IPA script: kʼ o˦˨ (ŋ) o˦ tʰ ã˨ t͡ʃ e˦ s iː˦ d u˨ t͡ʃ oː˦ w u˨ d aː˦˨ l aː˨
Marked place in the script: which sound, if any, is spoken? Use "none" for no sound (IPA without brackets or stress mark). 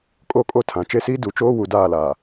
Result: kʼ